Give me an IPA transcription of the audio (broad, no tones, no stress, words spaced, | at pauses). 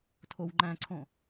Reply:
tʰowŋ͡ǃæ̃ǀʰõ